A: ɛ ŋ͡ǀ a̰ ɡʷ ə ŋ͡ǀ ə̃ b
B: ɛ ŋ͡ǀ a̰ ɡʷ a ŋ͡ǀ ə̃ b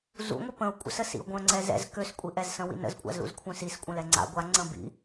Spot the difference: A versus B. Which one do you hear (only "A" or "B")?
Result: B